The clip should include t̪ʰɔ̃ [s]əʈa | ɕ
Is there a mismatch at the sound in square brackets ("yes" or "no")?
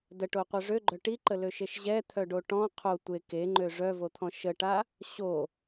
yes